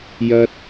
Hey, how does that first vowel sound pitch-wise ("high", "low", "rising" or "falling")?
high